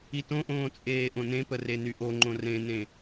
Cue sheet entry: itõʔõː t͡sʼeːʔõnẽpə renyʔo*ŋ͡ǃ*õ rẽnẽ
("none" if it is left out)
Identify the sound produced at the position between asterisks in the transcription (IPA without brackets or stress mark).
ŋ͡ǃ